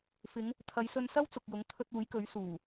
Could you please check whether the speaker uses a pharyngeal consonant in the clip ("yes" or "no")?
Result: no